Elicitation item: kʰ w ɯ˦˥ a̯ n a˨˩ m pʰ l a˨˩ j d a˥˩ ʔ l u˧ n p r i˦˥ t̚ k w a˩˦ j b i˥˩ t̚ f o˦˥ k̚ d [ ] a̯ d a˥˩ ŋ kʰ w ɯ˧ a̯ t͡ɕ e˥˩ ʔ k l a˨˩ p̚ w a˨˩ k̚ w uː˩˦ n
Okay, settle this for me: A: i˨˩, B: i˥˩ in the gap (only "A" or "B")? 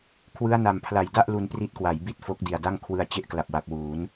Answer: A